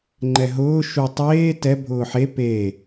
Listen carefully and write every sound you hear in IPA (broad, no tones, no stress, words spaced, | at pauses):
ŋ͡ǃɛɦʊː ʃu tˤeː tɛ bʱʊːħe pe